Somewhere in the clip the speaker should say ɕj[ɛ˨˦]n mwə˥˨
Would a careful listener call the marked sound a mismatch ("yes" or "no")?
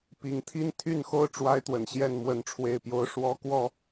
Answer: yes